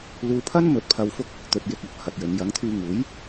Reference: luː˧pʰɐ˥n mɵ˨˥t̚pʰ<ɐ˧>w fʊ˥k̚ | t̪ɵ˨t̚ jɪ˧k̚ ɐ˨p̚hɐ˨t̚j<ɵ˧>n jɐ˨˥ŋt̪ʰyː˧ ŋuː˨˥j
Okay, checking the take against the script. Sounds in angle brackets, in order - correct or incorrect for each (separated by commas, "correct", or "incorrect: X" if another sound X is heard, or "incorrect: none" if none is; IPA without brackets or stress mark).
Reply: correct, incorrect: ɵ˨˧